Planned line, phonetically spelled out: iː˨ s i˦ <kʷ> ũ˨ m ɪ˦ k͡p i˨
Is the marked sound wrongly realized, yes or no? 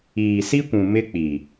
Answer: no